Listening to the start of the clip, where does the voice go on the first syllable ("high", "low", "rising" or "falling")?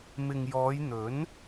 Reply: low